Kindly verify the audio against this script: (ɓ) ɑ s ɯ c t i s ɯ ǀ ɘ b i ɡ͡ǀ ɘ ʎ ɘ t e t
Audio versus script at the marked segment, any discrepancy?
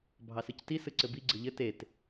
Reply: yes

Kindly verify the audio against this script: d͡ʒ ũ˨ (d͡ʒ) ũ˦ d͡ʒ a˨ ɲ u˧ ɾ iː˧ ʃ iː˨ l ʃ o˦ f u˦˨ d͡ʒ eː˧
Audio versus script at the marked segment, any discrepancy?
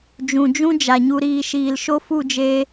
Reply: no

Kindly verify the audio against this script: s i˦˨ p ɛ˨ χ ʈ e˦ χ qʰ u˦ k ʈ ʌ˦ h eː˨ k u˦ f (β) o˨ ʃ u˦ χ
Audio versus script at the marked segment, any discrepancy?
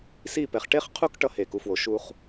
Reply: yes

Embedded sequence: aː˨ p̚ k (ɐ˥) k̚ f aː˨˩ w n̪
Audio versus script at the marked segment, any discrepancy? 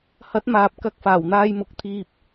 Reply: yes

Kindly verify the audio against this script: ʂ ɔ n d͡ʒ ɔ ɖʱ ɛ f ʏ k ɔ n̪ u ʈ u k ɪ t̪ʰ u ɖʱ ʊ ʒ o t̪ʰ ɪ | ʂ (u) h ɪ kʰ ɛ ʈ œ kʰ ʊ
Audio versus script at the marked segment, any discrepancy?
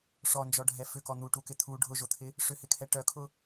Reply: yes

